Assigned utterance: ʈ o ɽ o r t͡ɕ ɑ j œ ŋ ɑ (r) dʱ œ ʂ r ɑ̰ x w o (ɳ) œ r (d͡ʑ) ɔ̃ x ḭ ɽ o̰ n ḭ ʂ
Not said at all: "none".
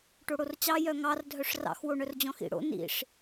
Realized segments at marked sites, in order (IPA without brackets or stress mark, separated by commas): r, ɳ, d͡ʑ